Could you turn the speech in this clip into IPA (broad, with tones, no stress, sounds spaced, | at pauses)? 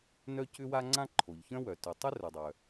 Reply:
n œ˥ c ʏ˥ w a˥ ŋ͡ǀ ã˥ ǃʰ o˩ ʎ ç œ̃˥ w œ˩ t ʏ˩ tˤ ʏ˥ r œ˩ dˤ œ˩